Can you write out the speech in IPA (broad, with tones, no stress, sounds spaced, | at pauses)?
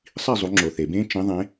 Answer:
sˤ i˥˨ zˤ u˨˦ ŋ͡ǁ o˨ θ e˨ b ẽ˥ t͡ʃ ĩ˨˦ ðˤ ẽ˨˦